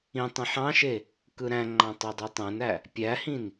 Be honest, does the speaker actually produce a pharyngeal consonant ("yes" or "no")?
yes